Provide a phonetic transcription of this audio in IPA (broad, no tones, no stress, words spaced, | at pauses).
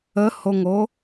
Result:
əhoŋo